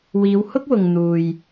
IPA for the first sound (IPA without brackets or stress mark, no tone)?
w